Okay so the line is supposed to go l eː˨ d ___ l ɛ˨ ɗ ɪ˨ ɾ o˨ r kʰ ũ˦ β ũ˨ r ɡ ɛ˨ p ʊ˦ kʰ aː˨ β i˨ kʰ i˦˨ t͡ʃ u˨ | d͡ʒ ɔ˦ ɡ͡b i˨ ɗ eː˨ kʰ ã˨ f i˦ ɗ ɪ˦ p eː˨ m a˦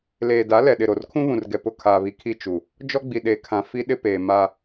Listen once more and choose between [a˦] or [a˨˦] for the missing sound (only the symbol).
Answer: a˨˦